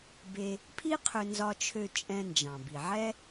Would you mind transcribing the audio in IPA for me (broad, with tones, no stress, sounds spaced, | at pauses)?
b e˧ | pʰ i˥ qʰ ʏ˧ n z ɒ˧ t͡ʃʰ ø˧ t͡ʃʼ ɛ̃˧ n d͡ʒ ɑ̃˩ b i˩ ʕ ɛ˥